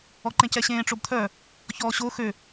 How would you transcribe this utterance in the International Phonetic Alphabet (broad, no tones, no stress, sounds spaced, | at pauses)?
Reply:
ɔ ǃ ẽ c ɛ ɕ ẽː ʈ͡ʂ o b t̪ʰ œ | ç ɔː ɕ o x ø